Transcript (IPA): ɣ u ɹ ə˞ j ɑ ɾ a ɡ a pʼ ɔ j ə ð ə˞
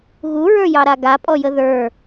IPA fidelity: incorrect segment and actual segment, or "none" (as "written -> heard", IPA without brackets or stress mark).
none